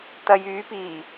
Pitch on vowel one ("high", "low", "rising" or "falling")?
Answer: low